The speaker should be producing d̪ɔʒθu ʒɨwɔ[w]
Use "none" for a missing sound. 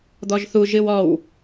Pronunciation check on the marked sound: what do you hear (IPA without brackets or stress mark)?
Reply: w